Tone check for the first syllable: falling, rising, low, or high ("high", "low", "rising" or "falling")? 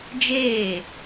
falling